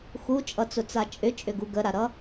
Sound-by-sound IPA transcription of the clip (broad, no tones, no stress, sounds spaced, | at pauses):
x u t͡ʃʼ ʌ t͡s ʊ t͡s a t͡ʃʼ ʏ t͡ʃʼ ʏ ɡ u ɡ ə ɾ a ɾ ʌ